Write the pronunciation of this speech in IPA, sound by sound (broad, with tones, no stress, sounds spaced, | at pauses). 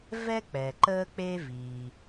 v ɛ˥ k͡p ɛ˩ ǃ əː˥ k͡p e˥ v i˩